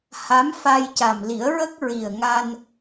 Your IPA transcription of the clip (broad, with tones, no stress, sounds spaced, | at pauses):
h a˧˥ m f a˧ j c a˨˩ m l i˨˩˦ ə̯ ɹ ə˦˥ k̚ ɹ i˨˩ ə̯ ŋ a˧ n